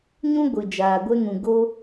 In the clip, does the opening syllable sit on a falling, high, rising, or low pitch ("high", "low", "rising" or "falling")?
high